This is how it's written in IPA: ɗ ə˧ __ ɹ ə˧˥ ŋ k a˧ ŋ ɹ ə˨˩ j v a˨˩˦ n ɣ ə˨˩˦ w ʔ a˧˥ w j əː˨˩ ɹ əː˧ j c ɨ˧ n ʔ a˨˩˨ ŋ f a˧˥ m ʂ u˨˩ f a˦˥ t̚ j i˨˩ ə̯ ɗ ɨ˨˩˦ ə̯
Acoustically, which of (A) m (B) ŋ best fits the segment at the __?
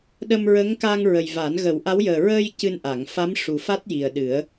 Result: A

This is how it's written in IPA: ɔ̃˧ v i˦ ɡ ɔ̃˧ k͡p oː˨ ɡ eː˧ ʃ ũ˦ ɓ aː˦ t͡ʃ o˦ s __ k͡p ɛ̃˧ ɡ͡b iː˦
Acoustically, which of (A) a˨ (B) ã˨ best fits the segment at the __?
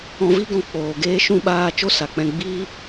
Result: A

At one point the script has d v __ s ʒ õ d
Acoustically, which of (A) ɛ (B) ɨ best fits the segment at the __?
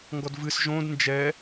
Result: B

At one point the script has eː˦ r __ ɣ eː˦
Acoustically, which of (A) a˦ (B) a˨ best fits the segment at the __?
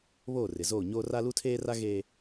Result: A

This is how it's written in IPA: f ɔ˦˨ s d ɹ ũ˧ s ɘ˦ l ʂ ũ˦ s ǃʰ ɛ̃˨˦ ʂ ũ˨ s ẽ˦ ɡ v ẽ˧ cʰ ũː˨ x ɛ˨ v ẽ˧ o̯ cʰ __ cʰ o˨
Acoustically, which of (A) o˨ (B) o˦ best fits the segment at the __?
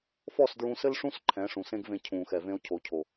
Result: A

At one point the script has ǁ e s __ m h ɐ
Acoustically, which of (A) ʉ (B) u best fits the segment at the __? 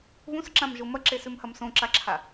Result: A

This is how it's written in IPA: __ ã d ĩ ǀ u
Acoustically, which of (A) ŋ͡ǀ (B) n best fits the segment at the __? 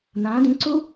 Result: B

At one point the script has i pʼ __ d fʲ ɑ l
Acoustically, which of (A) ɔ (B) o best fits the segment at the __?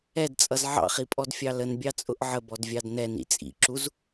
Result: A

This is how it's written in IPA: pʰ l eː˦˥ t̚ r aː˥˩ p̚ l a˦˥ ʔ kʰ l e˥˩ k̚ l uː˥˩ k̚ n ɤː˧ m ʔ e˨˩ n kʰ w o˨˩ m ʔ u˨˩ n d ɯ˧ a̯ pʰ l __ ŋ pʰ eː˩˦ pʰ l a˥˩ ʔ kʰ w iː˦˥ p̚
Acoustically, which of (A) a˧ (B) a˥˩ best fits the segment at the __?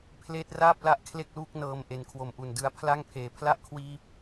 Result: B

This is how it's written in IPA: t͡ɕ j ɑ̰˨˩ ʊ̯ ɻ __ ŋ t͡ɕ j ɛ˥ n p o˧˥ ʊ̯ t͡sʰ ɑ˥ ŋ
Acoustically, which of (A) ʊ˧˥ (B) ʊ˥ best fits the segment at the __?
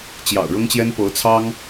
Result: B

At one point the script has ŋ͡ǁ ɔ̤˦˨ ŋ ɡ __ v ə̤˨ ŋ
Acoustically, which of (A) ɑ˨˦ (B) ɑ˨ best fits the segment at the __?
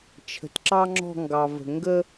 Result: B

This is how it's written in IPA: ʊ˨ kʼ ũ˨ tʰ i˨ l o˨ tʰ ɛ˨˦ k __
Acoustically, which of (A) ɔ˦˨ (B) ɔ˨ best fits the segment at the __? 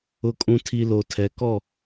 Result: A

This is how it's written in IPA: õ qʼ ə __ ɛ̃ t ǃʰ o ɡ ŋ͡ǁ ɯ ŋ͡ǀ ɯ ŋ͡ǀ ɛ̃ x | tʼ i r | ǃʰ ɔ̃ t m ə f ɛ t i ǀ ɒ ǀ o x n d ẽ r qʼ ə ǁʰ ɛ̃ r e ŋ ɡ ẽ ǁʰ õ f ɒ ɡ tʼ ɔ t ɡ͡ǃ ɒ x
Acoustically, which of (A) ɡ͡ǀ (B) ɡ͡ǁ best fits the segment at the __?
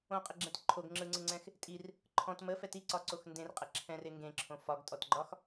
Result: B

